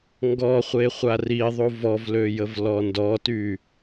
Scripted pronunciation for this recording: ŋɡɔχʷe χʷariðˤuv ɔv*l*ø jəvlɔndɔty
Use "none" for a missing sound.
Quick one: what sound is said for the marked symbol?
l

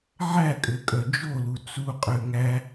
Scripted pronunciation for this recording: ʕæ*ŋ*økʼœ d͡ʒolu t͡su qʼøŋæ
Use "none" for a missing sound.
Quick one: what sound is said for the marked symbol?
kʼ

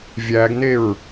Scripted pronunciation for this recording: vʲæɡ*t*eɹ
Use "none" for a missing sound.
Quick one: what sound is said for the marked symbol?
n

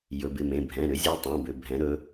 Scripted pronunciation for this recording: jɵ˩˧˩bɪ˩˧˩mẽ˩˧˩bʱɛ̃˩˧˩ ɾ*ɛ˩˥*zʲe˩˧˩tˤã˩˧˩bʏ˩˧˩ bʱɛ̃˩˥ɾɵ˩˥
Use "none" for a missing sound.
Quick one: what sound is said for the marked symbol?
ʏ˩˥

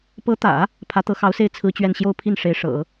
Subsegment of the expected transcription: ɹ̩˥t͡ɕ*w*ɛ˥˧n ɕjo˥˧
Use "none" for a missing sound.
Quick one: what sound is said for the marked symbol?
ɥ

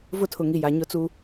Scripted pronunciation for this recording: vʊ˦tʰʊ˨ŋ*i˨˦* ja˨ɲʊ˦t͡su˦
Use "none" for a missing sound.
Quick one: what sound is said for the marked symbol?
i˨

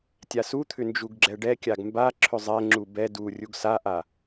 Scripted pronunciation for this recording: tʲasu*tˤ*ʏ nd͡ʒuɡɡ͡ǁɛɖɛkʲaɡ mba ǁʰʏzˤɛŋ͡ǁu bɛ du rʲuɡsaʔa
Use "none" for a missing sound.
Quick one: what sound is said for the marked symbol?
t̪ʰ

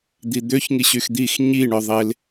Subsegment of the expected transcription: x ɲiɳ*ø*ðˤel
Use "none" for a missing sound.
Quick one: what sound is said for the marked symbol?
œ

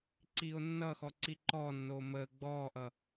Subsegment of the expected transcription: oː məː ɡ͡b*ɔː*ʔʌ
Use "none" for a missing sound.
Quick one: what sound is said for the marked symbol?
ɔː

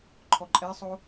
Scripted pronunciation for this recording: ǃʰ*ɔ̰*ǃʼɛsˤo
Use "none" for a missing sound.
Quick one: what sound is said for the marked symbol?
ɔ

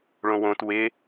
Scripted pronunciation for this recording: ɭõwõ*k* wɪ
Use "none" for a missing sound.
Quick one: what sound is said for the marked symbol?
t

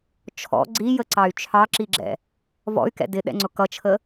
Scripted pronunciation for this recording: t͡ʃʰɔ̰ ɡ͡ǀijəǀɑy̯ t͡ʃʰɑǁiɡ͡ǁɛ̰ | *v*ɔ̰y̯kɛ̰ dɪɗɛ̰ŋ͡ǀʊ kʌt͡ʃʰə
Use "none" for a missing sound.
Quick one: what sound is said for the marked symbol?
v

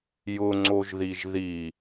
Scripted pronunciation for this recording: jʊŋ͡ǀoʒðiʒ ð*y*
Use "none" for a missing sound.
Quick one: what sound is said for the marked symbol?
i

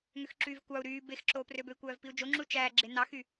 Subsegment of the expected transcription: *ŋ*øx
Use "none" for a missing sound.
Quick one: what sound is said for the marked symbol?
ŋ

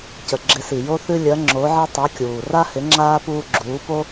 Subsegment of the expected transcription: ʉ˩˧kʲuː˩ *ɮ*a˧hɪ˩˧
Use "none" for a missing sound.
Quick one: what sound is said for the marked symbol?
r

